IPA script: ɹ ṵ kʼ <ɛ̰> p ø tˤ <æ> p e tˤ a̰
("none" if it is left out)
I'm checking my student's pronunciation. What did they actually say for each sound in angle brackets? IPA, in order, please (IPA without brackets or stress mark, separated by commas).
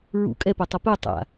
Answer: ɛ, ɐ